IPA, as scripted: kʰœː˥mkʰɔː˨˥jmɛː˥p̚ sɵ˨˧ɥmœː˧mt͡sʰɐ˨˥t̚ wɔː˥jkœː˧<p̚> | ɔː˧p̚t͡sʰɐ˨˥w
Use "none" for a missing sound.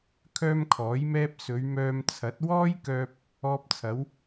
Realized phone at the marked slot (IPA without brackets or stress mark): p̚